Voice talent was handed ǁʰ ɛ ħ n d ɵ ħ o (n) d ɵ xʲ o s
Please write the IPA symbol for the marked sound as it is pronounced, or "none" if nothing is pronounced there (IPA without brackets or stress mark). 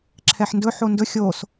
n